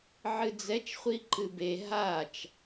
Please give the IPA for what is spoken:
ʕɨd͡zɛt͡ʃ χʷiǃɨbe ɦat͡ʃ

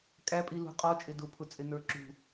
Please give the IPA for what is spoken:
kʼæpʼi lṳqʼɔ t͡ʃʼɪdʊpʰʊt͡sʼɪ nə˞ǁṳ

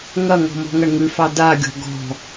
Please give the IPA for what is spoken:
ŋɐŋɔ̤ mɔ̤ŋɐɳŋʉfɑ daɡʲɔ̤ ɡɔ̤

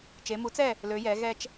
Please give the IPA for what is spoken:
t͡ʃe˩˧mu˩˥t͡sɛ˥˨ | lø˩˧jɛ˩˧ɣɛ˧t͡ʃ

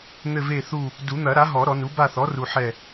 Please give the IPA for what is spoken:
n̪ɘ˦˨ve˦˨θu˦˨ | du˨˩˦n̪ɐ˨˩˦ ɾa˩˥ɦɔ˨˩˦ ɾɔ˨˩˦nu˩˥ ba˦˨θɔ˩˥ru˨ ħɛ˦˨

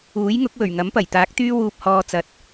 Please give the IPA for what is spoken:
uː˨˥jŋʊ˨˥k̚wɵ˨˩ɥ ŋɐ˨˥mpɐ˨˩jt̪aː˨˥k̚ t̪yː˥wuː˧p̚hɔː˧ t͡sɐ˧t̚

